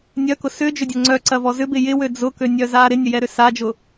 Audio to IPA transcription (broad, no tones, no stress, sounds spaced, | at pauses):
nʲ œ k ʊ s ʏ d͡ʒ ʏ dʲ ɐ ŋ͡ǀ œ ǀ ɐ v ɔ z ʏ b ɪ j ɪ w ø d͡z ʊ k ø nʲ œ z a ɾ ɪ nʲ ə j ɛ ɾ ʏ s a d͡ʒ ʊ